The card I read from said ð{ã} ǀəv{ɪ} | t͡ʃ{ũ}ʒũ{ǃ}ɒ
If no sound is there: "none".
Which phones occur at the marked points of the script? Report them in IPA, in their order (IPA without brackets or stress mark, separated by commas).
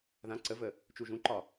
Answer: ã, ə, u, ǃ